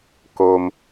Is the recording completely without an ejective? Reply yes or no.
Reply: yes